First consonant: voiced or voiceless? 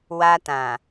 voiced